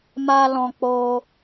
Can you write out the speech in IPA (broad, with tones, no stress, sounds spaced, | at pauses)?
m a˧ l ɔ̃˧ k͡p oː˦